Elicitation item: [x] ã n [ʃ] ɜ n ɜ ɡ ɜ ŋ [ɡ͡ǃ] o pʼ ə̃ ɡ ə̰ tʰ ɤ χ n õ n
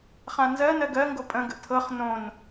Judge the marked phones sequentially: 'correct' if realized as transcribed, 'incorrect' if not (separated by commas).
incorrect, incorrect, incorrect